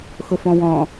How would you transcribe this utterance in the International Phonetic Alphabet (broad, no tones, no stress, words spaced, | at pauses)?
xʊfɔ̃wɔ̃